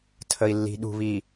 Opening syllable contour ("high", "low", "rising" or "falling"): low